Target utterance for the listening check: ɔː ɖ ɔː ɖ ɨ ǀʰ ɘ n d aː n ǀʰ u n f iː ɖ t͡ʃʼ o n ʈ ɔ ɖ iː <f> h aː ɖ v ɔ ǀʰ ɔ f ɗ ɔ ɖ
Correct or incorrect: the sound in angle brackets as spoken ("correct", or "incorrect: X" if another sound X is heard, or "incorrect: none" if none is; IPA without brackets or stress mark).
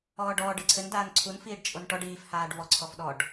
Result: correct